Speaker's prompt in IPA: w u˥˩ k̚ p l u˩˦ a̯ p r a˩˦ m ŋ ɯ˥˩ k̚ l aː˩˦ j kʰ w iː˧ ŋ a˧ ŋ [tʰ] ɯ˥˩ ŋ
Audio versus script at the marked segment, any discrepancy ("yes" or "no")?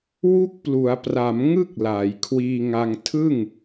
no